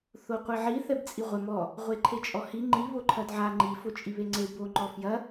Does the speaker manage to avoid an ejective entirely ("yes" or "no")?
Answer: no